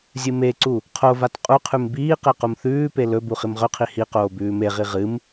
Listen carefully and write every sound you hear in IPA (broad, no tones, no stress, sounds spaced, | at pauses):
zʲ ɨ m e ǀ u | qʰ o v a t qʼ u qʰ ʉ m b iː q e q u m θ ʉː p e l ɵ b u χ i m ʁ ɵ qʰ i h i q oː b ʉː m e ʁ i ʁ ɨ m